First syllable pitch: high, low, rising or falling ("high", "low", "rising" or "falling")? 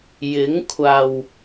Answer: rising